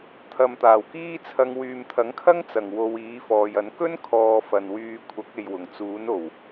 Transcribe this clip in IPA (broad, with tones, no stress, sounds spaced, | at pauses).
t̪ʰ ɐ˨ m t̪ aː˨˩ w k iː˥ t͡sʰ ɐ˧ ŋ w yː˨ m t̪ʰ ɐ˨˥ ŋ kʰ ɐ˥ ŋ t͡s ɐ˨˩ ŋ w o˧ w iː˨˥ f ɔː˨ j ɐ˨˥ n k ɵ˥ n kʰ ɔː˨ f ɐ˨ n w yː˧ kʷʰ ɐ˨˥ k̚ e˨ j w ʊ˨˩ ŋ t͡s uː˨˥ n o˨˩ w